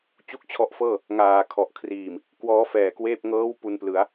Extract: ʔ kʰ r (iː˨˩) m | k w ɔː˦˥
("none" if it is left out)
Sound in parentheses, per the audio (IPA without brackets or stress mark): iː˨˩